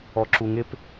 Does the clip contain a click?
yes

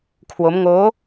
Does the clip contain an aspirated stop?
yes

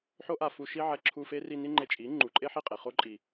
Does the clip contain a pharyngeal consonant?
yes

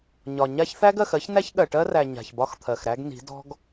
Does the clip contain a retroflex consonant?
yes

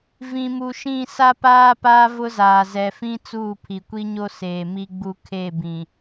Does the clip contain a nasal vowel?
yes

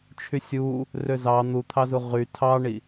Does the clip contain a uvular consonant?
yes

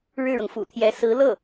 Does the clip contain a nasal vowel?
no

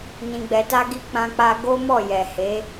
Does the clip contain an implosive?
no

